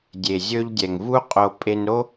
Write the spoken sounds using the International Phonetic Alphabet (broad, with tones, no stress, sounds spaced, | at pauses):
dʲ e˨ zʲ ɵ˧ ʎ dʲ ɛ˨ ŋ v u˦ qʼ o˧ pʼ e˧ n ɾ o˦